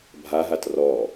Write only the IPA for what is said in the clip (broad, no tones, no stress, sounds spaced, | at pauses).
bʱ a ɦ a t r ɔ